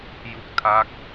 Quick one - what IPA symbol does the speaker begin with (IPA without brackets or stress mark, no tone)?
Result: j